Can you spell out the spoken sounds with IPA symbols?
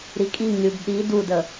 ɾ i kʼ i ŋ lʲ u b ɗ i d u d ə

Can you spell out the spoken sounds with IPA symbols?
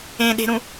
ẽ ɗ e̤ ɾ ũ

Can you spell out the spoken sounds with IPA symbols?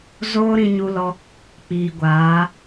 z oː˦ ɾ ĩ˧ ɲ u˧ l ɔ˧ | k͡p iː˨ ɡʷ aː˨˦

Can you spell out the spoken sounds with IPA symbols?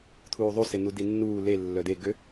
t̪ʰ uː ðˤ u s e n̪ u d i nː uː l e lː œ d e ɡ ø

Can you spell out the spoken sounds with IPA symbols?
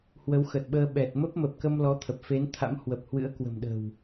h w ə˨˦ w x ə˨˩ t̚ ɓ əː˧ ɓ ɛ˨˩ t̚ m ə˦˥ p̚ m ə˨˩ p̚ k ə˧ m l ɔ˨˦ t̪ʰ ə˨˩ p̚ f e˨˦ n t̪ʰ a̰˧˥ m h w ə˨˩ p̚ h w ɨ̰˧˥ ə̯ k w ə̤˨˩ m ɗ ə̤˨˩ w

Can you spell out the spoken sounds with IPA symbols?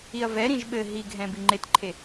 i ɐ̯ v ɛ ɾ ĩ ʒ ɓ ɘ ɦ i ɡʱ ɛ̃ b i ŋ͡ǃ e t ǃʰ e

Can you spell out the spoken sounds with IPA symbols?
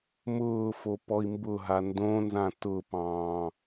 m ʊː f o p ɔ i̯ m b ʊ ɦ a n d õ n z ã t ʊ p ɑ̃ː

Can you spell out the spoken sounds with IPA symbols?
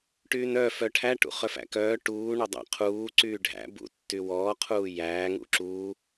ʈ yː n œ f œ ʈʰ æ ʈ ṵ χ œ f æ̰ k œː ʈ uː ɳ o dˤ æ̰ qʰ uː ǀ yː ɖʱ æ̰ b ṵ tː y w ɔː qʰ uː j æː ŋ ṵ ǁ uː

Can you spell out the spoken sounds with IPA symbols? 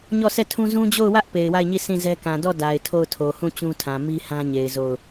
ɲ ɔ˦˨ s ɛ˦˨ tʰ ũ˦ z ũ˦ d͡ʑ o˦˨ ʊ̯ w ä˦ ʔ p e˨ ɪ̯ w a˦˨ ɪ̯ ɲ i˦˨ s ĩ˦˨ z ɛ˦ k ã˨ d ɔ˦˨ d a˨ ɪ̯ tʰ o˦˨ ʊ̯ tʰ o˨ h ũ˦˨ t͡ɕ ũ˦ tʰ ã˨ m i˦ h ã˦ ɲ e˨ ɪ̯ z o˦˨ ʊ̯

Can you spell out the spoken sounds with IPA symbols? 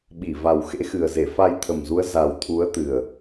ɓ i˧˩ v a˨˩ w x ḛ˧˥ x ɨ˨˩ ə̯ z e˧˩ f a˧ j t̪ʰ ə˨˩ m z u˨˦ ə̯ z a˨˩ w t̪ʰ u˨˦ ə̯ t̪ ɨ˨˩ ə̯

